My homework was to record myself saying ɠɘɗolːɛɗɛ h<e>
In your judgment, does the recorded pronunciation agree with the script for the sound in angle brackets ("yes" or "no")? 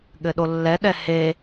yes